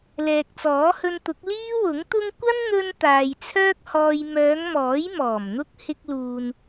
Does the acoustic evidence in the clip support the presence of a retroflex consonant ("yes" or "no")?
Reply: no